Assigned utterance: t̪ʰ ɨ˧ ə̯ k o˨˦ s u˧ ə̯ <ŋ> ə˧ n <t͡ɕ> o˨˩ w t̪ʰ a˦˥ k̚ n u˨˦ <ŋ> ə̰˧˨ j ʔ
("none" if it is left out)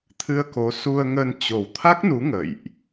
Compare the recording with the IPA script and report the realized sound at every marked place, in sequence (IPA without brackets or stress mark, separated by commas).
ŋ, t͡ɕ, ŋ